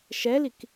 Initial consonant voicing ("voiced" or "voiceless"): voiceless